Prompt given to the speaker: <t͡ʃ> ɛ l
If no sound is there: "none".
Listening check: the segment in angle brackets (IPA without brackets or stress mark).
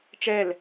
t͡ʃ